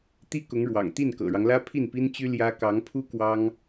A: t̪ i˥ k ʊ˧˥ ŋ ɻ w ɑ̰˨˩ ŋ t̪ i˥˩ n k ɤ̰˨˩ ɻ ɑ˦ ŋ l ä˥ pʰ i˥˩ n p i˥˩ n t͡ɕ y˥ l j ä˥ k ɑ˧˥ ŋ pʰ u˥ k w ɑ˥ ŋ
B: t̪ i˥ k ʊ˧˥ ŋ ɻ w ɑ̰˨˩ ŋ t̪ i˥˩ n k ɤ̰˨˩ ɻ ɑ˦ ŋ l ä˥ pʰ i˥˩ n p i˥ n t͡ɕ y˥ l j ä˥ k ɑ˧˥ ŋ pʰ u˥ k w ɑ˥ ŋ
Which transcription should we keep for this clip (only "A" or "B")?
B